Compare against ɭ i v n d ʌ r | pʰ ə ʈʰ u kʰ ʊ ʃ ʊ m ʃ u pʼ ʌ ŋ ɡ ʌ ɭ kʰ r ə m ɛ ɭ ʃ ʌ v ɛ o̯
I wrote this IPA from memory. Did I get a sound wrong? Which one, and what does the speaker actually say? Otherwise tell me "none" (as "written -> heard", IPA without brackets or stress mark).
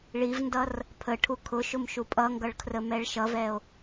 none